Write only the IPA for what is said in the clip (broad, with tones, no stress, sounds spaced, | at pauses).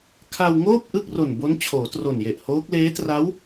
kʰ a˧ w ŋ oː˥˩ p̚ ʔ ɯ˥˩ k̚ r o˨˩ n b o˦˥ n t͡ɕʰ oː˩˦ t r o˨˩ n j e˨˩ ʔ h oː˦˥ k̚ l eː˦˥ t r a˦˥ w